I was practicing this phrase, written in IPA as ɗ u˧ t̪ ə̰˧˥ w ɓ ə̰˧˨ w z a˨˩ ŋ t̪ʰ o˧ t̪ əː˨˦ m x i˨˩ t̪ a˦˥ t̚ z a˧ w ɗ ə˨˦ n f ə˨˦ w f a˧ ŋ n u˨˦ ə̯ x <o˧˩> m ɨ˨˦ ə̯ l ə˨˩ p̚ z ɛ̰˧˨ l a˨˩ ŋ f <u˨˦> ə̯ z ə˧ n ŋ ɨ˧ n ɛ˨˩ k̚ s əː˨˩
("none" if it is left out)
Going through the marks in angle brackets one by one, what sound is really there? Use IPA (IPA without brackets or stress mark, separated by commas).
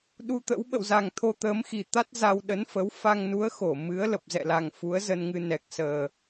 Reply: o˧˩, u˨˦